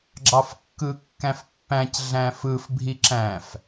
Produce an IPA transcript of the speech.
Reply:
ɡ͡ǁɑfkːɯkːæ̃fpːæ̃c ɮæ̃fɯf bʱiǁæ̃f

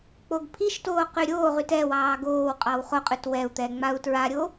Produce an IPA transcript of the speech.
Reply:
k͡poɡpʰiʃtoː qyɾʲoːʁyt ɛ wɑːɡoːwqʼɑw χoqʼʉt wɛu̯t̪ɛ ŋ͡mau̯tɹaɾʲo

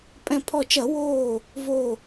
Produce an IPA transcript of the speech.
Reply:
pʼɛ̃˧˩pʰɔ˧˩t͡ʃɐ˧˩˧ woː˧˩ | vo˧˩

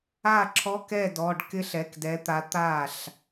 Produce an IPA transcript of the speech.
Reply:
a˥˩ǁʰɔ˧˥˧kɛ˥˩dɔ˩˧˩ɖ kɪ˥ɬ ɛ˩˧˩kdɛ˨˥t̪a˨˥ t̪a˥˩ɬ

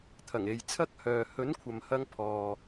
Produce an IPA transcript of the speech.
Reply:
t̪ʰɐ˨˩ŋe˨jt͡sʰɐ˥k̚hœː˨ hɵ˨˥nkʷʰɐ˨mhɐ˧ŋpʰɔː˨

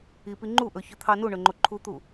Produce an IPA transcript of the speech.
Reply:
ipi ŋ͡ǃuʔɵ çɵt̪ʰɑnuɳɵ ŋ͡ǃoǃʰut̪u

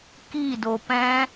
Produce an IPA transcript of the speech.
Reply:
kido pɛ̃

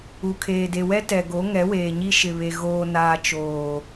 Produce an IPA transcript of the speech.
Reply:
u˨kʰeː˨de˨wɛ˦ tɛ˨ɡo˨˦ ŋɛ˨˦weː˨ɲi˦ ʃɪ˨βe˨ ɣoː˨naː˨ t͡ʃoː˨

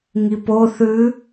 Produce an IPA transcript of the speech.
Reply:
ŋipo θʉ

